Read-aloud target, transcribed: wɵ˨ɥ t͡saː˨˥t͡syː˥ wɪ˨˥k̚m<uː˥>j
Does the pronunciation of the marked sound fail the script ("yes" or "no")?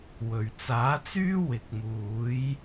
yes